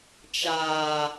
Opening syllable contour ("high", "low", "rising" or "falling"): low